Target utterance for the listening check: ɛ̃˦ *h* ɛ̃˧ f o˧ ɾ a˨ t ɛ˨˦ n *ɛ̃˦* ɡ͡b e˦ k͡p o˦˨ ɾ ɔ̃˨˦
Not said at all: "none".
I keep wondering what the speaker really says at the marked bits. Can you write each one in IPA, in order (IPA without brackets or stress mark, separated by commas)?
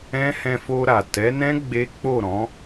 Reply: h, ɛ̃˦